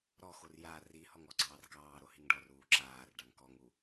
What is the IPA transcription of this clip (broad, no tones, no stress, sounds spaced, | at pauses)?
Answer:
ɾ ɔ x o r j a r i h ɔ ŋ ɔ ɡ͡ǀ ɑː r k ɑː ɾ o h i ŋ ɖ ɔ r uː ǁ aː r ɖ ɑ ŋ k ɔ ŋ u